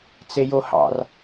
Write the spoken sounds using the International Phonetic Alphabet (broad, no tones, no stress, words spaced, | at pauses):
t͡sejohɑ̰r